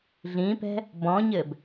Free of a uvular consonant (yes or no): yes